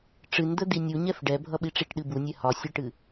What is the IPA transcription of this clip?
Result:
ʈ͡ʂ ɨ n d̪ ə d̪ i nʲ u ɲ ɛ f ɖ ɛ bʱ ʌ ɓ i ʈ͡ʂ i ʈ ɗ ɨ b u nʲ ɛ h ɒ sʲ ɛ ʈ ɨ

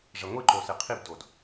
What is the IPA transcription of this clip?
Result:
ʐ ɛ ŋʷ i ǃ o s e qʰ i b d o d

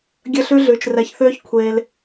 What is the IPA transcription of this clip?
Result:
ɡʲ ə˦˨ ɬ ʉ˦ ɮ ʉː˨ t͡ʃ r ɛ˨ ç θ øː˦ ç kʷʰ eː˧ l

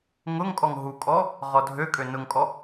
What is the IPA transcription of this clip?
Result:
ŋ ʊ ŋ kʼ ɔ ŋ ɦ u kʼ ɔ | ʁ ɔ dʱ ø kʼ ø n ʊ ŋ kʼ ɔ

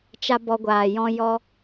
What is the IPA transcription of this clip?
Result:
t͡ʃ a˧ b ɔ˧ ɡʷ aː˨ j ɔ̃˦ j ɔ˦

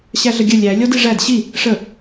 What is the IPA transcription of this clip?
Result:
ɕ æ ɮ ə ɡʲ ə lʲ æ lʲ ɔ d i ʐ æ d ɕ i | ʂ ə

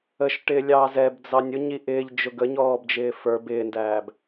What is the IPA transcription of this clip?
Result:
ə ʃ ʈ ɪː lʲ ɑː z ɛ b d͡z ɑ nʲ ʊ ɲ i ʔ ɪː ʎ d͡ʒ ʊ ɡ ə ɲ ɔː b d͡ʒ ɪː f ə˞ b ɪː n d æː b

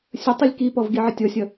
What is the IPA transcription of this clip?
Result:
sʲ ə tˤ i lʲ k i p ɔ v ɡ i ʕ ə tʲ ɔ sʲ ʌ

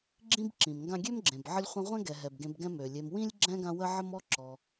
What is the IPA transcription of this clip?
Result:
ɡ͡ǁ ĩ˥ b ǁ ĩ˩ m ŋ ɡ ã˦ ɡʲ ø˦ m ɡ͡ǁ ẽ˩ b ʕ ə˦ lʲ χʷ ə̃˦ ʁʷ ɛ̃˥ ɡ ɛ˨ ɦ ɛ˩ b ɡ ẽ˨ b ɡ ɛ̃˦ m ø˩ lʲ e˨ m w ĩ˥ lʲ ɡ͡ǁ ɛ̃˥ ɡ ã˦ w ə˥ ʕ ə˥ m ɔ˥ ǁ ɔ˨

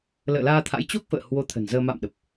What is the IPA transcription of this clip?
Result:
l ə̰ː˧˨ l aː˧ t̪ʰ a̰˧˥ j t͡ɕ o˦˥ k̚ f ə̰ː˧˨ h w o˧ t̪ʰ ə̤˨˩ n z əː˧ m a̰˧˨ m ɗ ə˨˩ p̚

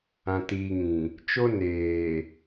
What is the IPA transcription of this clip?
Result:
ã˨ t iː˨ ŋ ĩ˨ | t͡ʃ o˦ n eː˨

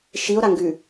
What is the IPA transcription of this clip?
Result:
ʃ i o̯ ɾ a ŋ ɡ ʉ

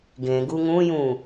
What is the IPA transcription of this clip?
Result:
ɡ ẽ ɡ u ŋ ũ j ũ

